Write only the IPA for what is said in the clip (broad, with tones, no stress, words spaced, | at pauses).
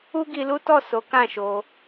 u˦ɡi˧lu˦tɔ˦˨ so˨˦ kã˦˨ʃo˧